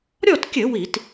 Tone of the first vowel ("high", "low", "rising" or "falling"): falling